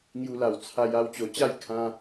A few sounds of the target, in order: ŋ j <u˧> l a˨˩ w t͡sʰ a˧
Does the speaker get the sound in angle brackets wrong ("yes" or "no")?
no